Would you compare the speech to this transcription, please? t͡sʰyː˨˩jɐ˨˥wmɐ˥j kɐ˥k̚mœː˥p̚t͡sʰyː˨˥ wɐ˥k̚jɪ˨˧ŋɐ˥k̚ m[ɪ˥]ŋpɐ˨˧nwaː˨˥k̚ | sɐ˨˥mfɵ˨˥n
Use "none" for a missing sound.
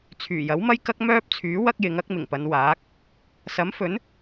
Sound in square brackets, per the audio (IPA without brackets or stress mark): ɪ˨˩